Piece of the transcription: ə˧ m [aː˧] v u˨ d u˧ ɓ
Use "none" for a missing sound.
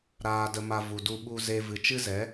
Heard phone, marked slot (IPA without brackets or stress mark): a˧